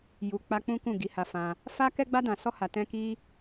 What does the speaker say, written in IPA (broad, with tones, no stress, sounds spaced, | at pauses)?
j u˧ k͡p a˦ k͡p ũ˦ k ũ˦˨ ɡ i˨˦ h a˧ f ã˧ | f a˦ k ɛ˦ ɡ͡b a˦ d ã˧ s ɔ˦ h a˧ t ɛ̃˦ k i˦